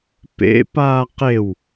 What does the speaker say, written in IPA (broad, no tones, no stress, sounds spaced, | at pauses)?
p ḛ p aː q e w